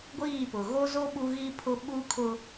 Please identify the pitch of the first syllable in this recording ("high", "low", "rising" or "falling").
falling